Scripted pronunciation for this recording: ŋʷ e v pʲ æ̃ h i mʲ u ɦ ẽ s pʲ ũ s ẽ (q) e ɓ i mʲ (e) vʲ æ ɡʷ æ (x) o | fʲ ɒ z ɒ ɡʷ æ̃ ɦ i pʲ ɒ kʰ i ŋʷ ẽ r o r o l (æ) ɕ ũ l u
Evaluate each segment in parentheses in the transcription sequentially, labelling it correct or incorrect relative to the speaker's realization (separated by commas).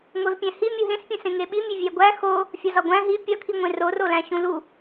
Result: incorrect, correct, correct, incorrect